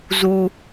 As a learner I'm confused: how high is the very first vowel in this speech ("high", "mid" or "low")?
high